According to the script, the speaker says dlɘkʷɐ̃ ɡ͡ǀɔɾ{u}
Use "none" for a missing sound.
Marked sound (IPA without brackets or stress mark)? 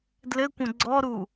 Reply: u